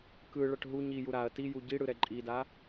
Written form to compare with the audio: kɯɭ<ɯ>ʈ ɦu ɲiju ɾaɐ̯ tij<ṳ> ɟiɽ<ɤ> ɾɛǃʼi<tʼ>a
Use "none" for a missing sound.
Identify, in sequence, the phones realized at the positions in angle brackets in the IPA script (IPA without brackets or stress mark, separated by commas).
ɤ, u, ɯ, d